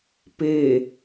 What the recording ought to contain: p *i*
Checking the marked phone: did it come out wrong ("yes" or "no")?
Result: yes